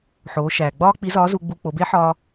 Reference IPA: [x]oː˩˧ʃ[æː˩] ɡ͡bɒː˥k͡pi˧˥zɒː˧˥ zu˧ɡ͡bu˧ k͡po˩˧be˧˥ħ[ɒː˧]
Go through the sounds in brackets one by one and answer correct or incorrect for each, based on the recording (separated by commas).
incorrect, correct, correct